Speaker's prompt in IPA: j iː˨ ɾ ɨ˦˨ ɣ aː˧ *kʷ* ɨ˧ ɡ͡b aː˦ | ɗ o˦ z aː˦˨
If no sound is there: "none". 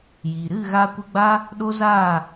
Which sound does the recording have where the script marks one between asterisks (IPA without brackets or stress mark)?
kʷ